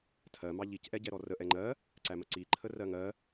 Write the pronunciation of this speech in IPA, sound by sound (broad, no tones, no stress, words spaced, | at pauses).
tʰɜ mɑʎic ʔɛɟɛɾɔrə ʔɛŋ͡ǃɜ | ǀæməǀi ǃʰərɜŋɜ